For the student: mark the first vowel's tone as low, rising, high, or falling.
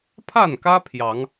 falling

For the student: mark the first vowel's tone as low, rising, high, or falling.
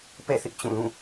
falling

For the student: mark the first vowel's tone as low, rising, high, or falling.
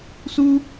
high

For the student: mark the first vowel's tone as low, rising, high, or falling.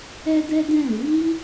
high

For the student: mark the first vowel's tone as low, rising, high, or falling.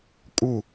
falling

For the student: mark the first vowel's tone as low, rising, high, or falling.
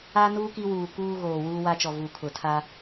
high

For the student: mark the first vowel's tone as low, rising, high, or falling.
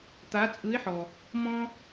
rising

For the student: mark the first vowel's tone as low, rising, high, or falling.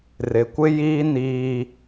low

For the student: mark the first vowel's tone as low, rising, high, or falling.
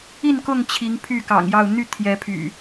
falling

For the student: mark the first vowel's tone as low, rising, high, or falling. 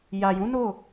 low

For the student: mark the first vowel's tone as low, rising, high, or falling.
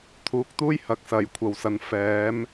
rising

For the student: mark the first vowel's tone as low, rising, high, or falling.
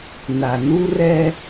low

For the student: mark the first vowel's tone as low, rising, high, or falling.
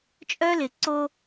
high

